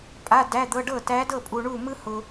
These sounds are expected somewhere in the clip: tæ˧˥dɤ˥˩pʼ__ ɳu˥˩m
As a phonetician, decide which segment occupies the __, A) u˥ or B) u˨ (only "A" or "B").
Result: B